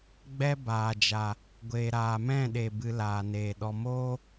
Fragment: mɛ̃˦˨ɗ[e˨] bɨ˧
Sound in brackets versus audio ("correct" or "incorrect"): correct